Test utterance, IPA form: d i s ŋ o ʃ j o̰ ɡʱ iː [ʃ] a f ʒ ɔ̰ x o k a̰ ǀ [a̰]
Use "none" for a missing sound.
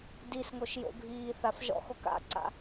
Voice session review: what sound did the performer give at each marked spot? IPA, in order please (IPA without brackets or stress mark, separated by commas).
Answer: θ, a̰